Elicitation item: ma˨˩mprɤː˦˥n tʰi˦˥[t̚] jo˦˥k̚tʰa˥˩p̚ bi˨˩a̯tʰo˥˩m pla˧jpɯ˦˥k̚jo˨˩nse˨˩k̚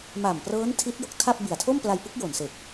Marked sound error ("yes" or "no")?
no